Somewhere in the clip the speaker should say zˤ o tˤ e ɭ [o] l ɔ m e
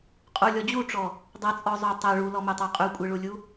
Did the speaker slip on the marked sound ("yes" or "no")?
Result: yes